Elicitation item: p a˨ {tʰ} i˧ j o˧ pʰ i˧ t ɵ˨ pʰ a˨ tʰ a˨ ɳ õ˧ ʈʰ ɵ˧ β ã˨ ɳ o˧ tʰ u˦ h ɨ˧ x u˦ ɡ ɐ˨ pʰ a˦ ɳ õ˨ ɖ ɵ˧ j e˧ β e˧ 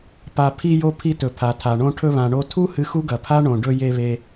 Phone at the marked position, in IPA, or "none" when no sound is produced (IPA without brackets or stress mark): pʰ